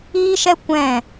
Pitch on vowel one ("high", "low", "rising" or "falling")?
high